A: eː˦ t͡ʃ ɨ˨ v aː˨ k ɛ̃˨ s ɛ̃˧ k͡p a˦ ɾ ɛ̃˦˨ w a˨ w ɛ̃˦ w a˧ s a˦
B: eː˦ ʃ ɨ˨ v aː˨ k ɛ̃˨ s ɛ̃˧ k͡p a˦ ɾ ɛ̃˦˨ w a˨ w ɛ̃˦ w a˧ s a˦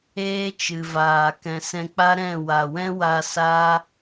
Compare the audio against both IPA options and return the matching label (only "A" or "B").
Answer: A